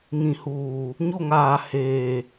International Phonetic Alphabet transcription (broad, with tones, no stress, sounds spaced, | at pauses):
ŋ ĩ˨ h uː˨ | ɲ o˦˨ ŋ aː˨ h eː˨